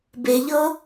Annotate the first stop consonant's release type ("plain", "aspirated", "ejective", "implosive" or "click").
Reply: plain